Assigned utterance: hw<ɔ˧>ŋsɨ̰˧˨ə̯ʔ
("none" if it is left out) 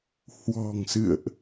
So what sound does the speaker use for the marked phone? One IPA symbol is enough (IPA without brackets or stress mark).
ɔ̤˨˩